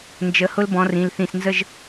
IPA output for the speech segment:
n d͡ʒ ə˨˦ h ʊ˦˥ l b ɔ̃˨˦ r ĩ˩˧˩ l θ ĩ˧˩ s n z ə˥˧ ʒ

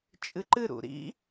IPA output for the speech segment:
t͡ʃʼ ɨ ǃ ɨ ɾ ṵ ɾ ḭ

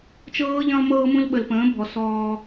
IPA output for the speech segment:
t͡ʃ ɤː˦ ʎ ə̃ː˦ lˠ m ɤː˦ m ũ˦ l ɓ ə˨ l p ə̃ː˨˦ bʱ ɔ˨ s ɔː˦

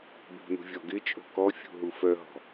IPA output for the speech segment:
b ṳ n ṳ vʲ ɔ ɡ ɪ t͡ʃʼ o̤ k ɔ fʲ ṳ ɦ u f œ ɦ ɔ̤

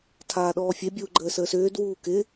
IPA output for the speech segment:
tʰ aː ɗ ɔː fʲ e bʲ uː ɡ͡ǃ əː s əː s ʏː d w uː k ɪ

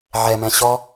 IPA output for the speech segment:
ʕ ɛ m ɛ̃ ɕ ɔ

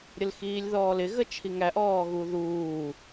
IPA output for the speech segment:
ɾʲ ə l x iː lʲ ð ɔː l ɪ ɣ ə t͡ʃʰ i ŋ æ ʔ ɔː ɣ u ð uː

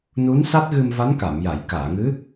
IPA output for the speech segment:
n u˧˥ n s a˦˥ t̚ ɣ ɨ˧ m v a˧˥ n k a˨˩˨ m j a˨˩˨ j k aː˨˩˨ ŋ ɨ˧˥

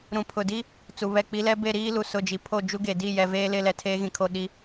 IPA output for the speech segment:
ɾ ũ˨ pʰ ʊ˨ d i˦ | t͡s u˨ β ɛ˦˨ k͡p i˦ l ɛ˦ b e˦˨ ɾ iː˦ l u˨ s ʊ˦˨ d͡ʒ i˨ pʰ o˦˨ d͡ʒ u˦ ɡ e˨ d i˦˨ j ɛ˨ v eː˦ l ɪ˦ l ɛ˨ tʰ eː˦ ɣ ĩ˨ kʰ o˦˨ ɗ i˦

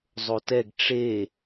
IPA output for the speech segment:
zˤ o t ɛ ɡ ʈ͡ʂ e

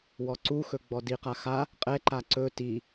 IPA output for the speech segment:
w ɔ ǀ u x ɵ ɡ͡b ɔ d i q a x a | qʼ ɛ ǃ a ǀ ɵ t i

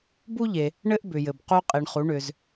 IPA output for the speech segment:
b u˥ ʎ e˩ | ɳ ɘ˥ ʔ b ʏ˩ j ɘ˩ b q u˧ qʼ i˩ ɳ χ u˩˧ ɳ ʏ˩ z

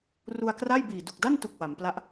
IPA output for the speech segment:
r u˧ a̯ k r a˥˩ j b iː˨˩ d u˨˩ k̚ d a˥˩ n t u˨˩ k̚ w a˩˦ m p l a˥˩ ʔ

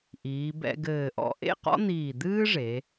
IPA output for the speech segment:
ʔ iː˩˧ b ɛ̰˧ ɡ ɘː˧˩ ʔ ɔ̰˧ ʔ ḛ˥˧ q ɔ̰˥ n̪ iː˧˩ d̪ ɨː˥ ʐ e˩˧

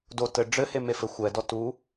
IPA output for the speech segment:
d o t ɘ ɖ͡ʐ ɘ h e m e f ɘ xʷ ɛ d ɔ t u

